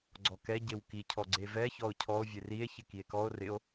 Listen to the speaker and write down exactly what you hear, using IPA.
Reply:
ɡ͡ǀ ɔ k ɛ ɟ e w k i cʰ ɔ ɡ͡ǀ e v ɛ ç ɔ o̯ cʰ ɔ o̯ vʲ e r i e̯ ç ɪ k i e̯ k ɔ o̯ r ɪ o̯

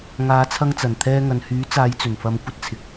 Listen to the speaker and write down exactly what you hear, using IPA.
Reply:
ŋ aː˨˧ t͡sʰ ɐ˧ ŋ t͡s ɐ˨˩ n t̪ʰ ɛː˧ ŋ ɐ˨ n h yː˨˥ t͡s aː˨˧ j t͡s ɵ˨˩ n f ɐ˧ m kʷ ɐ˥ t̚ t͡sʰ ɪ˨˥ k̚

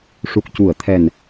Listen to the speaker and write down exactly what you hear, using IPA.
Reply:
ʂ u˨˩ k̚ c u˨˩˨ ə̯ t̪ʰ ɛ˨˩ n

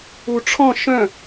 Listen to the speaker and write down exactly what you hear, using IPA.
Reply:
u ʈ͡ʂʰ ɔ̃ ʃ œ̃

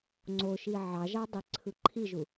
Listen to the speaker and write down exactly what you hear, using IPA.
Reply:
ŋ͡ǀ o ʃ i ʕ ɑ ʒ ɑ dˤ e ǀʰ ɯ ǃʰ i ʒ u

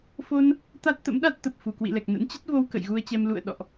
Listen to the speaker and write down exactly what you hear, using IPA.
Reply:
f o˧ n | t̪ a˦˥ t̚ t̪ ə̰˧˥ m ɗ a˦˥ t̚ t̪ ə˨˩ p̚ f u˧˩ k w ḭ˧˨ l ɛ˨˩ k̚ n ə̰˧˥ n t͡ɕ ə˦˥ t̚ v o˧ w k ə̰˧˨ j ɣ u˧ ə̯ t͡ɕ ɛ˧ m l ṵ˧˨ ə̯ ɗ ɔ̰˧˨ ʔ

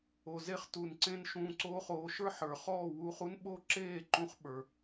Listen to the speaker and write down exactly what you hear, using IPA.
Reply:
o˨ z e˧ χ t u˨ n ǀ ẽ˧ n ʃ ũː˧ ǀ oː˦ χ oː˧ ʃ ə˞˦ ħ ə˞˨ χ ɔː˦˨ w uː˧ χ u˦ n ɓ o˦ ǁ eː˦˨ ǃ ũ˧ χ ɓ ə˞˨

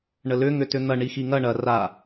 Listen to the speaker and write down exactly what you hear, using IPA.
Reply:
ɳ ə l ʏ ŋ ʏ t ʏ n̪ ɐ ɳ i x i ŋ ɐ ɳ ɐ r a

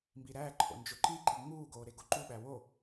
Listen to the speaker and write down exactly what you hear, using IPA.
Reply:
m b i ɾ æː ǃʰ o̰ n d͡ʒ o ǃ i ǃ i ŋ͡m uː ɡ oː ɾ e ɡ o ǃ u ɓ æ w o

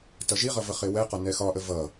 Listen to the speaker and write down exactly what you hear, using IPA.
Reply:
t ʌ ʒ i ʁ ʌ v ə χ ɪ w ɛ q ɒ n ɛ x ɒ ʔ ə v ʌ

